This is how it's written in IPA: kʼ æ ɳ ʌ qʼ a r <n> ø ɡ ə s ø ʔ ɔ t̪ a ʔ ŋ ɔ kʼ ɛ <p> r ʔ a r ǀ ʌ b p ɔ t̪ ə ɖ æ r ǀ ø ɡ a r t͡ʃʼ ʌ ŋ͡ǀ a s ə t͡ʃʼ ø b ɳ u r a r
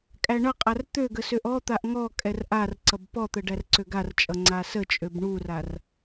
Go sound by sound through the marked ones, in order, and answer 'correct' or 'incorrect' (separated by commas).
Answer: incorrect, incorrect